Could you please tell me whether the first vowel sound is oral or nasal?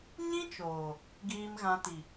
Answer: nasal